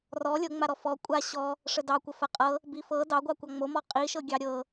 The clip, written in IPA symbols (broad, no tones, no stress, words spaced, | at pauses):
rɔ lʲɤŋ͡maɾɔ fɔ kʷʼa ɕɔ | ʂədɑkʷə fəqʼɤ | bifɤ dɑɡʷɑ kʷɑŋ͡momɔ qʼiʃɤɡʲɑ ɾʲɤ